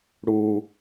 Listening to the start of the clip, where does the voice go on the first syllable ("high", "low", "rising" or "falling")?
low